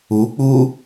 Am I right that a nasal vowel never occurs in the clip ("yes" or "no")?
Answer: yes